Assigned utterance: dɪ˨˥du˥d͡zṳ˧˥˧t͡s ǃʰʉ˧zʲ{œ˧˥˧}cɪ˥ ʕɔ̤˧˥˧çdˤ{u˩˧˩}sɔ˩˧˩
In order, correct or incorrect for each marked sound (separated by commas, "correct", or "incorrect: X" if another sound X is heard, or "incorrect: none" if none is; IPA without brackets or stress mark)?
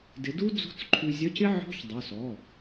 correct, correct